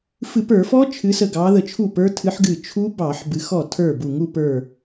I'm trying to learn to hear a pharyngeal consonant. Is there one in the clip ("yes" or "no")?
yes